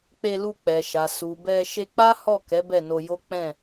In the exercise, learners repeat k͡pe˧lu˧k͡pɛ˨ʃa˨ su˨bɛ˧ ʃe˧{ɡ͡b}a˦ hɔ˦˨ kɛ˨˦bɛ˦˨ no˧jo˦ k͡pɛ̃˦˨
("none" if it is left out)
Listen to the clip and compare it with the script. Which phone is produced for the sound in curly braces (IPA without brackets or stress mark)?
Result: k͡p